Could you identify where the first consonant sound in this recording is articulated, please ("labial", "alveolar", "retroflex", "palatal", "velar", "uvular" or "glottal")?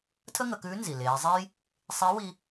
alveolar